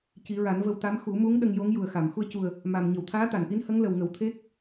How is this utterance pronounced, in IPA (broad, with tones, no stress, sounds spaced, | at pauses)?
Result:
c i˨˩˦ ɹ a˨˩˦ n v ə˧ w t̪ a˧˥ m x u˨˩˦ m u˧˥ ŋ ɗ ə˧ ŋ j o˧˥ ŋ j u˨˩ ə̯ x a˨˩˨ m x u˧ ə̯ c u˨˩ ə̯ | m a˨˩ m ɲ ə˨˩˨ w t̪ʰ aː˧˥ t̪ a˨˩˨ n ʔ i˧˥ n h ə˧˥ ŋ l ə˨˩ w ŋ ə˨˩˦ w t̪ʰ e˦˥ k̚